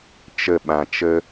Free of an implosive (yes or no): no